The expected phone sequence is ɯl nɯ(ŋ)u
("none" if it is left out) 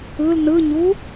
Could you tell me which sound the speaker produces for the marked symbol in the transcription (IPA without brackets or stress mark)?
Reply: ɲ